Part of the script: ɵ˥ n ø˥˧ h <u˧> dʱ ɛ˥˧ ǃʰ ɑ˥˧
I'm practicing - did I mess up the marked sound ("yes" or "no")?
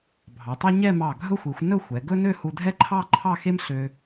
no